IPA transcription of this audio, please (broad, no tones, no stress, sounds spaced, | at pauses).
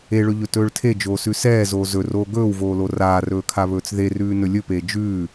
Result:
e ɭ ɵ ʎ ɵ t ɵː ɭ tʰ e d͡ʒ oː s ʉ s ɛː z oː z ɵ r oː ɡ ɵː w v oː l o r aː r ɵː kʰ a β ɵː t͡s ð e r ʉː n ɵ lʲ ɵ p eː d͡ʒ ʉː